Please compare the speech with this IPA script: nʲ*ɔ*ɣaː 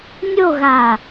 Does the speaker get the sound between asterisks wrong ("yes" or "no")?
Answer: yes